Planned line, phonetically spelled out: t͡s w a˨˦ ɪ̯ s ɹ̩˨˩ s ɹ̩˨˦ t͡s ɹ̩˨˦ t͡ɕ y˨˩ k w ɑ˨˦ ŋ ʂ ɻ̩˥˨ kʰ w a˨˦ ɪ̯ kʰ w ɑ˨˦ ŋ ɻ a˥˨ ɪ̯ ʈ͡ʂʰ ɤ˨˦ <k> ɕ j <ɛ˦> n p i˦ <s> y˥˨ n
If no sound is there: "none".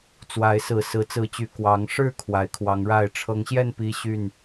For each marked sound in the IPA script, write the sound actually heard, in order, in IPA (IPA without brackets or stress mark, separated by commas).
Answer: ŋ, ɛ˥˨, ɕ